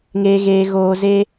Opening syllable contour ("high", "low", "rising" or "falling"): low